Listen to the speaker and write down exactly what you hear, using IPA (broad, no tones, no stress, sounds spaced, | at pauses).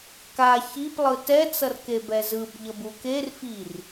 k a ç i p lˠ ɯ t ɛ t͡s ʌ r k e b ɛ z ɯ b ʎ ʌ b u k e r f i r